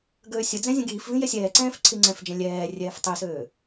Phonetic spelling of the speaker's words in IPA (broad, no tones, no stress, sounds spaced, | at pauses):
ɡ øː sʲ ə d͡z ɛ̃ zʲ ə̃ ɡ iː f v ĩ j ɛ sʲ ɛː ǀ ɛ̃ː f ǀʰ i ŋ͡ǀ ɛ̃ f d͡ʒ ɛ̃ lʲ ɛː rʲ ɛː f tˤ i s øː